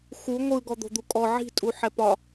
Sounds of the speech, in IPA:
x u ŋʷ ɯ ɡ ɔ d̪ o̤ d̪ u kʼ ɔ ʕ i̤ tʼ u ħ ɛ p ɒ

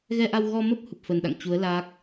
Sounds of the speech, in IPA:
ɣ ɛ˧ ʔ a˧ w ɣ ɔ˧ m ə˦˥ p̚ h u˨˩ p̚ f ə˨˩ n ɗ a̰˧˨ ŋ t͡ɕ u˨˦ ə̯ l aː˦˥ k̚

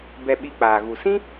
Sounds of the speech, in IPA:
b ɛ˧ ɓ i˧ k͡p aː˧ ɣ u˧ s ĩ˦

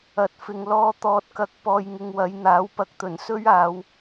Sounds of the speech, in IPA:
ɐ˨ t̚ f ɪ˨ ŋ l ɔː˧ t̪ ɔː˨ t̚ k ɐ˨˥ k̚ p ɔː˨ j ŋ ɪ˨ ŋ w ɐ˨˧ j n̪ aː˨˥ w p ɐ˧ k̚ t̪ ɵ˨˩ n s ɵ˥ ɥ aː˨˧ w

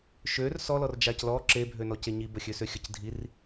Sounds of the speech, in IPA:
ʃ ø r s ɔ l ɔ r d͡ʒ a c l ɔ ǁ e bʱ ø n ɔ c e ɲ i b ə xʲ ø s ø xʲ ə c dʱ i r

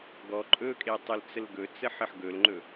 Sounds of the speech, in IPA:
ɡ ɔ ǃʼ ɵ kʼ e tˤ ɵ l t͡s ə l ɡ ɵ t͡s ə ħ ə ħ ɡ ɵ l ŋ͡ǃ ɵ

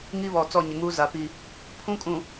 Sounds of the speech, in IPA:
ŋ i˦ β ɔ˨ t͡s ɔ˦˨ ɲ ɪ˨ ŋ uː˦ z a˨ p i˦˨ | pʰ ũ˦ kʼ ũ˨

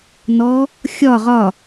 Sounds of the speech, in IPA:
n ɔ | xʲ ɒ ʁ ɒ

